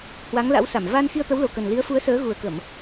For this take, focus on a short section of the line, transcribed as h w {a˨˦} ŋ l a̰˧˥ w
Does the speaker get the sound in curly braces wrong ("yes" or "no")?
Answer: no